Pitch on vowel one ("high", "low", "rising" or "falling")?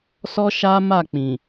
high